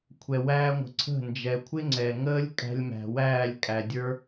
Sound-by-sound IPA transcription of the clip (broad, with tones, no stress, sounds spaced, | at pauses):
kʷʰ ɛ˨ w æː˧ ŋʷ ə̤˨ ǀʰ ə̤˦˨ n d͡ʒ ɛ˨ kʷʰ ɪ˦ ŋ͡ǀ ɛ˨ ŋ əː˦ lʲ kʼ æ̤˧ lʲ m æ̤˨ w æː˦˨ lʲ kʼ æ˨ dʲ ə˞˦